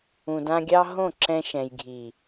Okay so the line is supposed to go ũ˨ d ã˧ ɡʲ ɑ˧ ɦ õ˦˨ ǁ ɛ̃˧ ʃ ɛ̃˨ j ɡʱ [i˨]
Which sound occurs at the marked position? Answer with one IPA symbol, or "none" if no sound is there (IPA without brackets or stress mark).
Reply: i˨